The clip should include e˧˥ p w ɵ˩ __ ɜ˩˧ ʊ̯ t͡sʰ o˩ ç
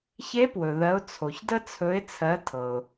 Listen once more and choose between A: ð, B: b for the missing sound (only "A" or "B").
A